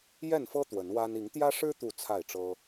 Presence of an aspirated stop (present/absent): present